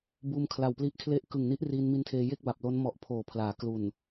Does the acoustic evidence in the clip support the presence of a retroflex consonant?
no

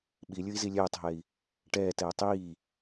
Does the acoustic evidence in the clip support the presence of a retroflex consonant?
yes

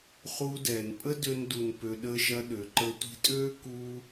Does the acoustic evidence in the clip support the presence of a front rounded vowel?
yes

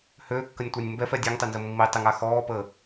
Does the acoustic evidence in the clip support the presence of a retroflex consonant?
no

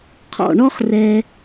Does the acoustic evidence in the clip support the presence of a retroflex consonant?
yes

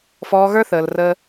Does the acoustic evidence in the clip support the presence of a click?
no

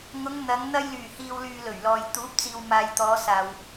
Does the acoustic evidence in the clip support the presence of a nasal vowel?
no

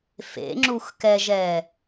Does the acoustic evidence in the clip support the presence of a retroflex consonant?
no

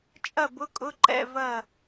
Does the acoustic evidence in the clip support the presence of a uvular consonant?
no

